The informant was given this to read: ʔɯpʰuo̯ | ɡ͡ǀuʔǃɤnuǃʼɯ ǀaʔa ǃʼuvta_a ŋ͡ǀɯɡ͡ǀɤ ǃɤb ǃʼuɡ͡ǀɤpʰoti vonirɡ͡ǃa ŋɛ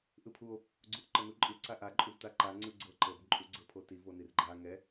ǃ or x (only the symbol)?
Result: ǃ